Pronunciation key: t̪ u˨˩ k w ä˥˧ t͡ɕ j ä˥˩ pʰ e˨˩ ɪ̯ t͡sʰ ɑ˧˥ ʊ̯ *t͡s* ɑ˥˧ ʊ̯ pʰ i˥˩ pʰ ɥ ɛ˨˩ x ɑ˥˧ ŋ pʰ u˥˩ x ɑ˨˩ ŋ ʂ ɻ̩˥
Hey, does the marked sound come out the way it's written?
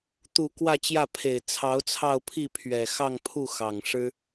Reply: no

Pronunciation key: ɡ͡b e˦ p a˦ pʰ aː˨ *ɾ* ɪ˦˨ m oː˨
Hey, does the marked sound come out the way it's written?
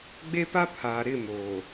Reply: yes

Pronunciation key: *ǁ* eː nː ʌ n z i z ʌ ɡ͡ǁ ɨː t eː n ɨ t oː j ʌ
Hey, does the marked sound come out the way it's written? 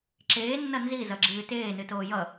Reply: yes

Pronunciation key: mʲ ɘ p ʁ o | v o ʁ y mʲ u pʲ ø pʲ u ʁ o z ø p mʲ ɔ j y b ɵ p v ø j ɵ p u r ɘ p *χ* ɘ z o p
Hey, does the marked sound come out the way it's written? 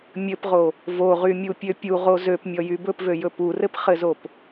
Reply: yes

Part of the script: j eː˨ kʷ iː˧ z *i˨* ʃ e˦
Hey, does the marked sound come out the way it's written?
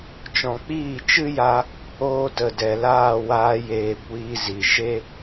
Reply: yes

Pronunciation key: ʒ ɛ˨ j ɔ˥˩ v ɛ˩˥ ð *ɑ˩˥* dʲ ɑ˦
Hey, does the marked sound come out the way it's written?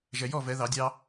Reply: no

